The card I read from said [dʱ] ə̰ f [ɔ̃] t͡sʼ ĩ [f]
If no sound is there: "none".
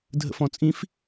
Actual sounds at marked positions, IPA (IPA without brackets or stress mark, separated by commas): dʱ, ɔ̃, f